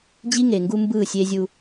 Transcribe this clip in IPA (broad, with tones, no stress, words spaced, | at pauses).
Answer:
d͡ʑi˦ŋe˨ŋɡu˦mbɯː˦˨ sʲe˦zʲu˦